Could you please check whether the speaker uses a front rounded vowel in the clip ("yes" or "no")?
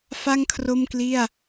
no